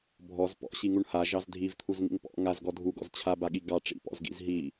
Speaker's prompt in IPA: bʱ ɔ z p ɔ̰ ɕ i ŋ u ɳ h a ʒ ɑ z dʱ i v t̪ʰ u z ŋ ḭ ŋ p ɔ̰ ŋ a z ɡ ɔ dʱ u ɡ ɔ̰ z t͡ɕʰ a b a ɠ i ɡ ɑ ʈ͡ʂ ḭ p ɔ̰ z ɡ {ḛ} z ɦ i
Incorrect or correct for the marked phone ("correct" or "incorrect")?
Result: incorrect